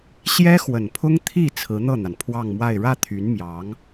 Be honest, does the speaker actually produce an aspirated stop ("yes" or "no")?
yes